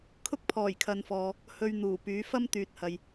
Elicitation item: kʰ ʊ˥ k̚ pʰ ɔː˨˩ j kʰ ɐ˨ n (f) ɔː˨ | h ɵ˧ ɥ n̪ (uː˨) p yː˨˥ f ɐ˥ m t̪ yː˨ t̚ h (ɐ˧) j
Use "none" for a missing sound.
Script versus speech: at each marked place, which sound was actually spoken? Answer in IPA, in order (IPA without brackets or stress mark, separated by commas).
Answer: f, uː˨˩, ɐ˨